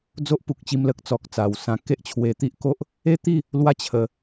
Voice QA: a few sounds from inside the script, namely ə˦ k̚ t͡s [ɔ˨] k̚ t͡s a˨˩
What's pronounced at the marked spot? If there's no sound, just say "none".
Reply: ɔ˨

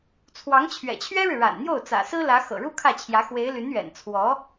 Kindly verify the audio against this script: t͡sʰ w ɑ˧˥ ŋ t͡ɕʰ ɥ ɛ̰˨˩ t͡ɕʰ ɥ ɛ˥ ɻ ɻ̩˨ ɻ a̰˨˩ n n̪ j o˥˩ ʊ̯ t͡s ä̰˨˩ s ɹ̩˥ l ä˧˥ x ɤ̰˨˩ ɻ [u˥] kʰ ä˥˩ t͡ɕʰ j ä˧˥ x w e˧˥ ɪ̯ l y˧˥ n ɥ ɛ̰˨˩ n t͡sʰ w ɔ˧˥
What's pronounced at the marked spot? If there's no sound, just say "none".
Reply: u˥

